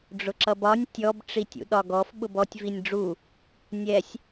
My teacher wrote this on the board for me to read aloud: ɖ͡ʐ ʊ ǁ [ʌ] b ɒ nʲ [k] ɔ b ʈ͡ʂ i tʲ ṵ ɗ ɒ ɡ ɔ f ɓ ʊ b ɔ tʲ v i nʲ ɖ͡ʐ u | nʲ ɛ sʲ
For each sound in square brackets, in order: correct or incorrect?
correct, incorrect

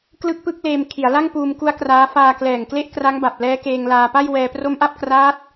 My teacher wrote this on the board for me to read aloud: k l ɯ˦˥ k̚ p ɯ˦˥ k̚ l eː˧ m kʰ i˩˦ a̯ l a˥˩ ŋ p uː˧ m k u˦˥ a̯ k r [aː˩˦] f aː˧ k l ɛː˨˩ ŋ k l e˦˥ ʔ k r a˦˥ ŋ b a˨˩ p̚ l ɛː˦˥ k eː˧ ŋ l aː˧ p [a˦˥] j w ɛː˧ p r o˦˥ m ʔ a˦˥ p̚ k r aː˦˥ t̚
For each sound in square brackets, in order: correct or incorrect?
incorrect, incorrect

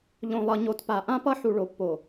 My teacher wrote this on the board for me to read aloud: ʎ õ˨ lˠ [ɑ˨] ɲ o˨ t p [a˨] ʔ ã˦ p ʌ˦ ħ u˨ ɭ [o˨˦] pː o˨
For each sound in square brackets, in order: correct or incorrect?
incorrect, correct, incorrect

